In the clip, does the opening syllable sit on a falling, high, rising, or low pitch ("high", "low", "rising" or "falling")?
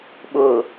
low